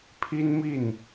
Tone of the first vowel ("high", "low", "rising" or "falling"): high